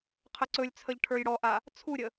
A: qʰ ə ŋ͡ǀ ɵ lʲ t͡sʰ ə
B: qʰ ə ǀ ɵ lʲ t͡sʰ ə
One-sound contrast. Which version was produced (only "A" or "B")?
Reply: B